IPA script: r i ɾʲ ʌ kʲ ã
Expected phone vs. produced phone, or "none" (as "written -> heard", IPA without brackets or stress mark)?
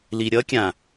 r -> l